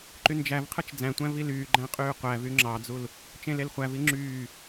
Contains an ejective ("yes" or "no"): yes